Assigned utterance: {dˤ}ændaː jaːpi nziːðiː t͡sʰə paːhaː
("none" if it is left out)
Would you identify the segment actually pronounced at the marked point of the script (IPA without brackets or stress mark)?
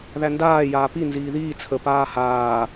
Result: ð